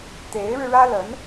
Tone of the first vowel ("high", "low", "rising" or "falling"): rising